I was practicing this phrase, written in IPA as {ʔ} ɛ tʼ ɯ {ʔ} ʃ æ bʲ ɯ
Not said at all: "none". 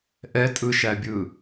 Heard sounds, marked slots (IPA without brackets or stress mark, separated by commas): ʔ, none